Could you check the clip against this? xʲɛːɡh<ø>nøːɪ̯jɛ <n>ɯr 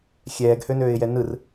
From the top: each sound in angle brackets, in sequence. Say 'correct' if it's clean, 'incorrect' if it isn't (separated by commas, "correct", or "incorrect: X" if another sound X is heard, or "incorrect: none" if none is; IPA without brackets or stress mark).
correct, correct